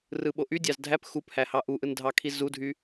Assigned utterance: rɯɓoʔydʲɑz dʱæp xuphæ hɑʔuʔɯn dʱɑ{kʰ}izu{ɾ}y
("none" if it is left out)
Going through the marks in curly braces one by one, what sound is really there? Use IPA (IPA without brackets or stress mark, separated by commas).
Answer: kʰ, dʱ